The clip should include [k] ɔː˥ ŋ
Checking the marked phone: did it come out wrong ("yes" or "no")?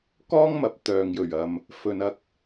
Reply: no